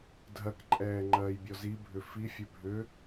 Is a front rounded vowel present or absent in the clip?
present